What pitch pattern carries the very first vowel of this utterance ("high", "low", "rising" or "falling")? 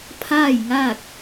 falling